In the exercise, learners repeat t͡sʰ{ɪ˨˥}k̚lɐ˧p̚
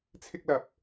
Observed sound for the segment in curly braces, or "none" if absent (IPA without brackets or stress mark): ɪ˥